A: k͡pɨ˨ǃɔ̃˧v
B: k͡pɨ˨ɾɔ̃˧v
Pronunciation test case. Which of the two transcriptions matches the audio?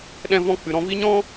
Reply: B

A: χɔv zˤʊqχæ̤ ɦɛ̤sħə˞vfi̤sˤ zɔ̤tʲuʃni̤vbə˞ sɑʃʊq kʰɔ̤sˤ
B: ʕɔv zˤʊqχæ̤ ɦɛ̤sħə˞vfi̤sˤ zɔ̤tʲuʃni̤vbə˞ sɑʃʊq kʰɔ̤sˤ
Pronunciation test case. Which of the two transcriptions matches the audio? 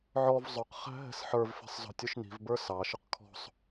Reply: B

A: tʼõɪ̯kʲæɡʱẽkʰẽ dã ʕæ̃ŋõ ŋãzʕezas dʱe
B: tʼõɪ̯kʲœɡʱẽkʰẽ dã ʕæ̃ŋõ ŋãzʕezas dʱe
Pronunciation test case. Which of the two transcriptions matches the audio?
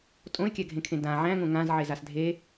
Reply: A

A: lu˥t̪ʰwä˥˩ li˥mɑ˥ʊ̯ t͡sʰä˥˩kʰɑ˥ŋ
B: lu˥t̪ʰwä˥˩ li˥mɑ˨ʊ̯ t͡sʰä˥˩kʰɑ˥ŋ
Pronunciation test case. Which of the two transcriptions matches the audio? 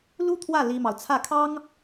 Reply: B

